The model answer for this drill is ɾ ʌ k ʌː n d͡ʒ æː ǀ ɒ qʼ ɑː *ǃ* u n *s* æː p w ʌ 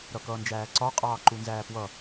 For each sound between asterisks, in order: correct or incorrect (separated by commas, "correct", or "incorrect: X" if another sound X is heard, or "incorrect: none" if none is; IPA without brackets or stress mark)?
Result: correct, incorrect: z